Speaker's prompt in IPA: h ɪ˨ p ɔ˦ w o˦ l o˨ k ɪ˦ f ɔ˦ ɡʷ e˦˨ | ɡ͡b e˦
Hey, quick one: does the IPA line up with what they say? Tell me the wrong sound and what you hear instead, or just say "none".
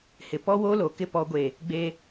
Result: f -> p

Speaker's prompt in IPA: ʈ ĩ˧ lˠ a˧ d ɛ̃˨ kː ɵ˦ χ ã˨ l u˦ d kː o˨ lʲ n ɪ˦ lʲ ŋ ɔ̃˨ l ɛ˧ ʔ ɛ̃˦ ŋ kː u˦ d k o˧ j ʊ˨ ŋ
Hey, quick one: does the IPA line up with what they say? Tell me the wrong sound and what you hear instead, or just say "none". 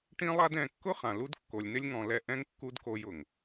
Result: ɵ˦ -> ʊ˦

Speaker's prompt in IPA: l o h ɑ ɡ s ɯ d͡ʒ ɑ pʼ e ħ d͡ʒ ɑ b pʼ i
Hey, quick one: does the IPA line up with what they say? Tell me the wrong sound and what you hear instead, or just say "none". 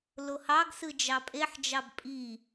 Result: none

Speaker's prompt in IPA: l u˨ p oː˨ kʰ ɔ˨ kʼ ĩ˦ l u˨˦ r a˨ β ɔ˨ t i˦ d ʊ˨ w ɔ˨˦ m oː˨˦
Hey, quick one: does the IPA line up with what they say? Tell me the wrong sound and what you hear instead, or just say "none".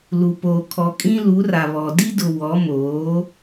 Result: t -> d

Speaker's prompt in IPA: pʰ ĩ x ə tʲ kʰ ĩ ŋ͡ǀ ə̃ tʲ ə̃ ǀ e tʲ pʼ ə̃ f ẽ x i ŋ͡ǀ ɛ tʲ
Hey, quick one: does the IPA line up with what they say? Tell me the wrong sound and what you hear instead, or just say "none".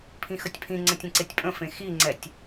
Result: kʰ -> pʰ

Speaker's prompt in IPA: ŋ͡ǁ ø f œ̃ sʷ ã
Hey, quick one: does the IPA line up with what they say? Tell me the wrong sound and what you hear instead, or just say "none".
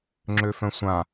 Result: none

